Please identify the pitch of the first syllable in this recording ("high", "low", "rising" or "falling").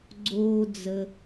low